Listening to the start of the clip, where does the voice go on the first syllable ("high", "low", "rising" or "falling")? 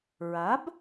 rising